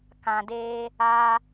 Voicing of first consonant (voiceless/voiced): voiceless